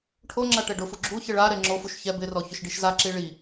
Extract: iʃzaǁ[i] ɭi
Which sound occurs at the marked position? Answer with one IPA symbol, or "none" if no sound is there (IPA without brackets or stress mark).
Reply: i